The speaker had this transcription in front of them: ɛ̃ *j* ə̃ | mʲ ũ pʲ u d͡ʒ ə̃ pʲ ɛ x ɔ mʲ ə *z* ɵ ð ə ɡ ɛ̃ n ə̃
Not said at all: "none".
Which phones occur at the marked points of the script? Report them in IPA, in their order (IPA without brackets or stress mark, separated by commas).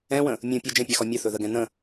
w, θ